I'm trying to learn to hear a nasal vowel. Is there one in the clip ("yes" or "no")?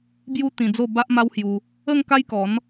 yes